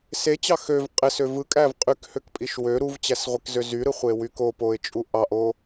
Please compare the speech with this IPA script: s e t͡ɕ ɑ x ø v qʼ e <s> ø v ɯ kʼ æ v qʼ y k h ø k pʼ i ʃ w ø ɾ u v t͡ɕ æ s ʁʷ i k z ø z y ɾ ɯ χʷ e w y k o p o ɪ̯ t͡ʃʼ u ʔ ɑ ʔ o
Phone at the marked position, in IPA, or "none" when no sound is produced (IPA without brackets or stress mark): s